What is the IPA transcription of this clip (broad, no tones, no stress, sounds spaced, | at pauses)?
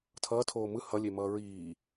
tʰ ʌː tʰ oː m ɯ h ʌ lʲ e m ʌː ɹ iː